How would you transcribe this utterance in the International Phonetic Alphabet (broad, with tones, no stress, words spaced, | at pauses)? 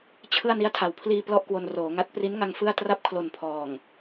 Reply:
t͡ɕʰɯ˥˩a̯ ni˦˥a̯tʰa˨˩wpʰliː˧ plɔ˥˩ʔkwo˧n roː˩˦ŋa˦˥t̚ pri˦˥nŋa˧ŋ fɯ˥˩a̯ tra˥˩p̚kʰlo˨˩n pʰɔː˨˩ŋ